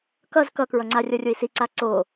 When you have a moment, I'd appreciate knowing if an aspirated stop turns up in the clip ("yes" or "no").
no